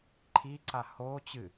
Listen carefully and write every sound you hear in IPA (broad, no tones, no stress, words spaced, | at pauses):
ǃʰiǀa ho t͡ɕɨ